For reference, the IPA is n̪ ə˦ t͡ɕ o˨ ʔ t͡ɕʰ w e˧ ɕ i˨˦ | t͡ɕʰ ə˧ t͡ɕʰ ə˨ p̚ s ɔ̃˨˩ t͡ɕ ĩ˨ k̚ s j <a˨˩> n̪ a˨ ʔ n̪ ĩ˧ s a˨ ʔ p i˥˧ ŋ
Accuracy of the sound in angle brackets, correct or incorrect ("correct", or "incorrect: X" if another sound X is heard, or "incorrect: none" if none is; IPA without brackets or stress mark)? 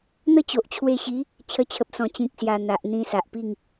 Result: correct